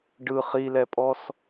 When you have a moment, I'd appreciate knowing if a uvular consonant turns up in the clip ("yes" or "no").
yes